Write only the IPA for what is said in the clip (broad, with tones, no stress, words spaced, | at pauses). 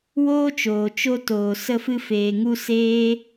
woː˦t͡ʃoː˨ t͡ʃo˧ toː˨ sə˧fɨ˧ feː˨ŋu˧ seː˦